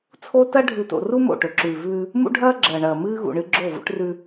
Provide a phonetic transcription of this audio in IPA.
t͡sʰ o˦ t ɐ˦ ɖʱ ʉ˨ t o̰˨ r u˦ m o̰˦˨ ʈ ɵ˨ ǁ ʉː˨ v ʉː˦ | m ṵ˦ ɖʱ ɐː˦ ɡ͡ǁ ɐː˨ ɳ ɐː˨ m ɨː˦ ɣ ṵ˨ ɳ ɨ˦ ɡ͡ǁ o˦˨ v ṵ˦ ʈ r ʉ˦

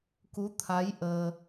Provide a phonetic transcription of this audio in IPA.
k u˨˦ t̪ʰ a˨˦ j ʔ əː˧

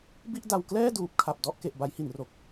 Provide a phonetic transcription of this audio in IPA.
b i˥˩ ʔ d a˧ w k l ɛː˥˩ d uː˨˩ p̚ kʰ a˨˩ p̚ d ɔ˥˩ ʔ k e˨˩ ʔ b a˦˥ j h i˩˦ n r o˨˩ k̚

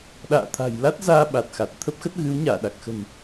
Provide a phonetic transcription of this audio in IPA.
ɗ a̰ː˧˨ t̪ʰ a̤˨˩ j l a˦˥ t̚ z aː˧ ɓ a˨˩ t̚ x a˨˩ t̚ t̪ʰ ə˦˥ p̚ x ə˦˥ t̚ ɣ ɨ˨˦ w ɲ aː˧˩ ɗ a˨˩ k̚ x ə̤˨˩ n

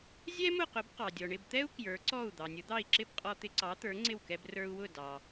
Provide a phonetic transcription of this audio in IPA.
zʲ ɛ˥ m ʊ˥˩ q ʊ˩˥ b q ɑ˩ dʲ ɔ˩ ɳ ɪ˥˩ b t̪ ɛ˥ u̯ k j ə˞˩˥ ǀ ɔ˥˩ u̯ d̪ ɑ˩ nʲ ʊ˩˥ d̪ ɑ˥˩ i̯ ǁ ɪ˥ b qʼ ɔ˧ t̪ ɪ˧ ǀ ɑ˩˥ t̪ ə˞˩˥ ŋ͡ǀ ɪ˥˩ w k ɛ˧ b r ə˞˧ u̯ w ʊ˥˩ d ɑ˩

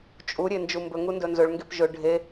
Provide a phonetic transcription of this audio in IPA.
t͡ʃʼ u ɾʲ e n d͡ʒ u m b ɵ ŋ u n d ɵ n z ɵ ɭ ŋ ɡ e p ʒ ɵ ɖʱ e

